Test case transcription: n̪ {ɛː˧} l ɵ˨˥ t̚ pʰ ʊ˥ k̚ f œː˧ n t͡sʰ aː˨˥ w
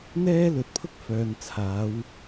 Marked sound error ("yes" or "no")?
yes